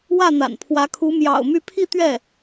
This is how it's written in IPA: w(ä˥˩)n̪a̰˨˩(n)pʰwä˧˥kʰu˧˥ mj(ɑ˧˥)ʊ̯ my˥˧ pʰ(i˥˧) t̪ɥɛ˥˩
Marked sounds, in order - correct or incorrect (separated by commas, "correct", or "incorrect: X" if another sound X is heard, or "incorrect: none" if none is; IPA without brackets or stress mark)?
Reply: correct, correct, incorrect: ɑ̰˨˩, correct